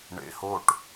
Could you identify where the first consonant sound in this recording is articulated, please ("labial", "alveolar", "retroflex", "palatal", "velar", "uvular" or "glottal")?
retroflex